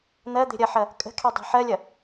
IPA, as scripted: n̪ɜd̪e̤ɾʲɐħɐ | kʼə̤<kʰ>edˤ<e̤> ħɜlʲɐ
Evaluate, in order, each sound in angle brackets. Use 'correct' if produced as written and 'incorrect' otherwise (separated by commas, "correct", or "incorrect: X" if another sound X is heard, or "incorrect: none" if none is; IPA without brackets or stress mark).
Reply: correct, correct